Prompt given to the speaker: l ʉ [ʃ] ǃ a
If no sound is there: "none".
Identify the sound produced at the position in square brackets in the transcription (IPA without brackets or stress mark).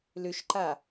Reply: ʃ